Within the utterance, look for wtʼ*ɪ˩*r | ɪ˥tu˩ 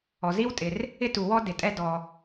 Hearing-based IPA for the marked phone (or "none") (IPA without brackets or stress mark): ɪ˩